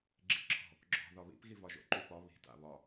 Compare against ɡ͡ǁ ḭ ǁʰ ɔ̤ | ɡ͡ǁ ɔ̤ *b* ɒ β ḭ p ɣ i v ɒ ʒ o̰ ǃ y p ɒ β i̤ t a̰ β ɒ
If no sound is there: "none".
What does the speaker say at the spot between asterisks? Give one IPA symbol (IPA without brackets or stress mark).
ð